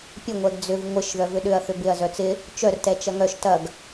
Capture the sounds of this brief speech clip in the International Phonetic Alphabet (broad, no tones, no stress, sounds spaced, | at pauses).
pʲ ə ŋʷ ɛ ɡ d͡z ʏ v ŋʷ ɪ ʃ ð œ v ʏ ɗ ʏ ɐ̯ θ ʏ b ɪ ɐ̯ z œ t͡s ɪ | t͡ʃ œ r t ɛ t͡ʃ ɐ ŋ œ ʃ t ɐ ɡ